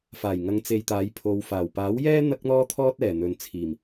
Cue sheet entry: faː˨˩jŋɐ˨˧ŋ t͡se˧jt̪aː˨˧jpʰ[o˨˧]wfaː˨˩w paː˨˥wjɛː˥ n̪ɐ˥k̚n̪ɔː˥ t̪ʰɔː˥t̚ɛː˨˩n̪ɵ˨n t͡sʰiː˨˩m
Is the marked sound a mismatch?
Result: no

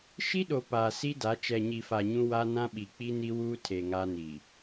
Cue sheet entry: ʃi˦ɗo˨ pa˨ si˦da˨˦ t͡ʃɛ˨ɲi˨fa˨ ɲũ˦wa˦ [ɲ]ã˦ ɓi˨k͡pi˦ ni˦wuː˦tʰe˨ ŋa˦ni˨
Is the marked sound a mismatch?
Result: yes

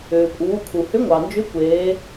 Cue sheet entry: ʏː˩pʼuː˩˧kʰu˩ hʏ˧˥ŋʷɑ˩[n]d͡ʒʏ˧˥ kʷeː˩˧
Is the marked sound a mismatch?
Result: no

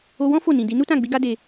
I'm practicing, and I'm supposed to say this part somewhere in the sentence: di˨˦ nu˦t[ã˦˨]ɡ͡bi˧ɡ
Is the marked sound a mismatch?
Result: no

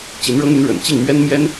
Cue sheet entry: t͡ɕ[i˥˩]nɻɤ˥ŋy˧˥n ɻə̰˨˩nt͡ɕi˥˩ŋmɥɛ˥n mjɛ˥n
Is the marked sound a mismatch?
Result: yes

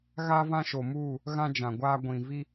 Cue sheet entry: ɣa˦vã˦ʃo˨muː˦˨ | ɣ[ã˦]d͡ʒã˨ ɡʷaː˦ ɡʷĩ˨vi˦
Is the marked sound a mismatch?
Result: no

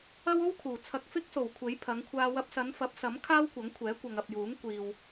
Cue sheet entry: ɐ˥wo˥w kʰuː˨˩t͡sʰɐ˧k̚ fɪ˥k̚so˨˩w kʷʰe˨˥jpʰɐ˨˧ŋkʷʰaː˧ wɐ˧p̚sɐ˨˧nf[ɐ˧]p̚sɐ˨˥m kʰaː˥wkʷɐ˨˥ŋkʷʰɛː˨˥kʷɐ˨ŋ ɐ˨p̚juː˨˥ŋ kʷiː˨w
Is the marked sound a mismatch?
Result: yes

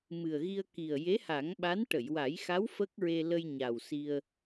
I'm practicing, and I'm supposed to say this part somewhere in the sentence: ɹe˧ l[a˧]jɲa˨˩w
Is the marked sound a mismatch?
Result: yes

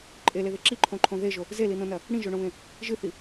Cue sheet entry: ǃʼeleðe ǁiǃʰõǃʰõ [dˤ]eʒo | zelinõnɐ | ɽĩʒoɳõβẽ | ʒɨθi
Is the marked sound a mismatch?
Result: yes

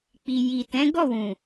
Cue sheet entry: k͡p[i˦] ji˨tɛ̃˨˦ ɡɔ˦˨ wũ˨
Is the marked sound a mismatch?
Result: yes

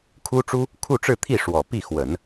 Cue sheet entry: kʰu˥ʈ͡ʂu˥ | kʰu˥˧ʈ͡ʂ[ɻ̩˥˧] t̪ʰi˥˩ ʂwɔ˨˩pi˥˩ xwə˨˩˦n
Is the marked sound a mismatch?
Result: no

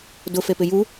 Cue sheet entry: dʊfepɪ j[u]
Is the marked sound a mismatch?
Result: no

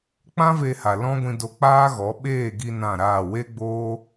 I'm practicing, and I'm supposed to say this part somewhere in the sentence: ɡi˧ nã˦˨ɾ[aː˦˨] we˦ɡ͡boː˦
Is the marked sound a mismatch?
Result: no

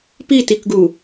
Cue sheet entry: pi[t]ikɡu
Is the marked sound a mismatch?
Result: no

